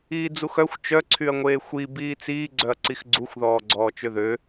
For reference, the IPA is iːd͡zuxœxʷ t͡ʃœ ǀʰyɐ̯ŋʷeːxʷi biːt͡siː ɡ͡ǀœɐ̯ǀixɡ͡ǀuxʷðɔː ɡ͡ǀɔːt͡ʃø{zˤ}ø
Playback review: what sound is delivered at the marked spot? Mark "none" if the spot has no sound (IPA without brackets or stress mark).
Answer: ð